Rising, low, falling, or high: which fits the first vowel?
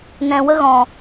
low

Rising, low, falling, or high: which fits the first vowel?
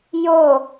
falling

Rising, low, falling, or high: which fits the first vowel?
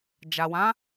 low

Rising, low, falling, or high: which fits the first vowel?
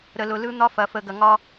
low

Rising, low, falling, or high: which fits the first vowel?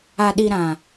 low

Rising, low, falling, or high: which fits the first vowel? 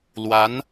rising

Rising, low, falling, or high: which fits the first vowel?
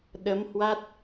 rising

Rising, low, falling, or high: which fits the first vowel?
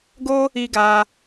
high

